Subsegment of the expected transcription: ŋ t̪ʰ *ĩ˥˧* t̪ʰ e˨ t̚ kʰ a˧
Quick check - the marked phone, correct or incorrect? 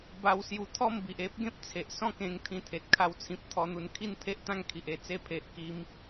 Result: incorrect